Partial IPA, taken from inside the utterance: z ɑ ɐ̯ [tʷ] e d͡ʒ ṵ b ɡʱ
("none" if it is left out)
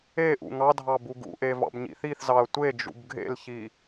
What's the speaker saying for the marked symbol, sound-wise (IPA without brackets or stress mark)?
tʷ